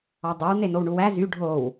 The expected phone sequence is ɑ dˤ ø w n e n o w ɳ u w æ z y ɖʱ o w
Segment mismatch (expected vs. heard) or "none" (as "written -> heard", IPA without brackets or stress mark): none